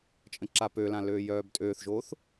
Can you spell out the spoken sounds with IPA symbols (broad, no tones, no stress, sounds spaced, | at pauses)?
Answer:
t͡ʃʼ ə̃ ǁ a p ø l ã l øː j œː b tʼ øː θ ʒ oː θ